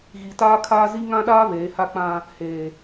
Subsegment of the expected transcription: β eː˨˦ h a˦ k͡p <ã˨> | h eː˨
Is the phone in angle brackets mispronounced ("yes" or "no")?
yes